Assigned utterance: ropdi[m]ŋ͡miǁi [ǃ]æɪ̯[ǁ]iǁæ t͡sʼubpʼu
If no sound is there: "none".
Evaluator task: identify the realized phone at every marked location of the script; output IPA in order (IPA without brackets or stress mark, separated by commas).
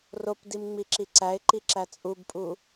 m, ǀ, ǃ